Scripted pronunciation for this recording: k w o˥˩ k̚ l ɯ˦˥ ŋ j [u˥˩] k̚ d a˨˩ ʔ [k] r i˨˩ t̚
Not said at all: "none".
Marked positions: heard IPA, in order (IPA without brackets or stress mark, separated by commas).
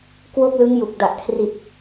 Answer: u˨˩, kʰ